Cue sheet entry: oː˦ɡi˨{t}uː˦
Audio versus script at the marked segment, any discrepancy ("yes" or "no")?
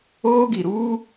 yes